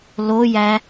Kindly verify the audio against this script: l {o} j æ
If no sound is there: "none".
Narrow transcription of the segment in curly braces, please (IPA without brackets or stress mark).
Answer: o